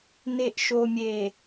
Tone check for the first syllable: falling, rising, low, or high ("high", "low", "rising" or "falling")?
low